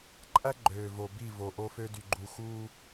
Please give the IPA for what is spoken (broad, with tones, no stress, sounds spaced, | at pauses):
ǃʼ æ˦ ɡ͡ǃ øː˨ v o˨ b i˦˨ v o˨ ʔ o˦ f ø˦ d y˨ ɡ͡ǃ u˨ x u˦